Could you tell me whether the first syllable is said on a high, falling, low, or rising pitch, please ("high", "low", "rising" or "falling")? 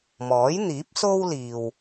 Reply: rising